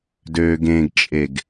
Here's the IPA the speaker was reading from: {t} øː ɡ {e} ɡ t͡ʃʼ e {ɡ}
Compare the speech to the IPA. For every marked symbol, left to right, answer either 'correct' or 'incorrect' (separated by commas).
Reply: incorrect, incorrect, correct